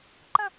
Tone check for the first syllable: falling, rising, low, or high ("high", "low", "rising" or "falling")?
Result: falling